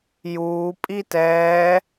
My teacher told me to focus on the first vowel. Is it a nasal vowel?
no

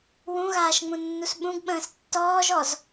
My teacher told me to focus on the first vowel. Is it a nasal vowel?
yes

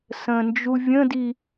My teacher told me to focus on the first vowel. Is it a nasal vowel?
yes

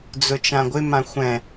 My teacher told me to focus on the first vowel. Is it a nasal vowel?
no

